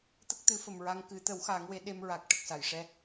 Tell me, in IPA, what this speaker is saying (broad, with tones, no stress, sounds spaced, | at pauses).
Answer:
t̪ ə˦˥ k̚ t̪ ɨ˨˩˦ f ə˨˩ m ɹ a˧ ŋ k ɨ˨˩˦ t̪ ə˨˩˦ w x a˨˩˦ ŋ w e˨˩˦ ɗ e˧ m ɹ a˨˩ k̚ ʈ ə˨˩ k̚ s a˨˩˨ j ʂ ɛ˧˥